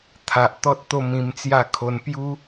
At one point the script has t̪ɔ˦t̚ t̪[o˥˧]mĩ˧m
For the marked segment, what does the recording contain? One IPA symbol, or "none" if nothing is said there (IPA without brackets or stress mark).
o˥˧